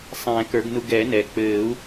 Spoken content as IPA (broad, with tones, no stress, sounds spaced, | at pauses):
sˤ ɛ̃ː˨˩˦ k ə˞˨˩˦ ɡ n u˧ ɡ ɛː˨˩˦ n ɛː˩ k͡p ɘː˨˩˦ u̯